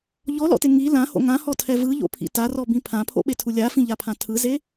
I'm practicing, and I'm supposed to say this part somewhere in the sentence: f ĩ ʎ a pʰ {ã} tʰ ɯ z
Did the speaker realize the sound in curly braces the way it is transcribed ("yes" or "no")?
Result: yes